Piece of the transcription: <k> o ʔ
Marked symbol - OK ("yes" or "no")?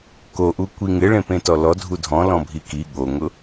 yes